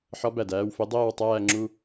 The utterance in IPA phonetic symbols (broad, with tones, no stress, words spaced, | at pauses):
ħɒ˧˥bæ˩d æː˥˨wfe˧˥ dˤeː˥˨wtˤæː˥˨ ŋ͡ǁu˥˨